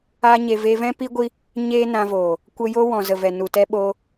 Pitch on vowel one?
high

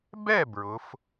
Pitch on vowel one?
falling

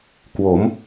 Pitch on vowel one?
rising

